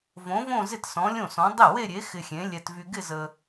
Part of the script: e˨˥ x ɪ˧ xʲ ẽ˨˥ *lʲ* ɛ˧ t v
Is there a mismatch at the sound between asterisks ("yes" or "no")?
no